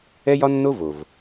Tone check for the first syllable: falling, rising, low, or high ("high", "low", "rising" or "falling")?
high